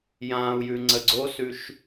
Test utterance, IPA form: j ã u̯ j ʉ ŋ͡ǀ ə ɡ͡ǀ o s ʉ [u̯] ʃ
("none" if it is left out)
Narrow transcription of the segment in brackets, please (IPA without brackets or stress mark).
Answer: none